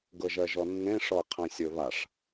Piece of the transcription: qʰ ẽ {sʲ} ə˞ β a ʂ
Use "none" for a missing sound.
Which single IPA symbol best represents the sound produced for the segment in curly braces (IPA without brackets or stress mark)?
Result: sʲ